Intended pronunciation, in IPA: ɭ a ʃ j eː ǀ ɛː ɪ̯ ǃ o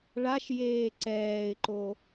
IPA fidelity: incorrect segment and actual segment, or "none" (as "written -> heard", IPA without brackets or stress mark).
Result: none